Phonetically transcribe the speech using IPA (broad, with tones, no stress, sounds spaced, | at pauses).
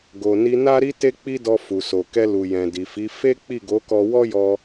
ɡ o˨ n i˧ n a˦ ɾ i˦ t e˦ k͡p i˦ d ɔ˧ f u˨ s o˨ k ɛ˧ l u˨ j ɛ̃˨ d i˨ f i˨˦ f e˦ k͡p i˦˨ ɡ o˨˦ k ɔ˧ w ɔ˦ j ɔ˧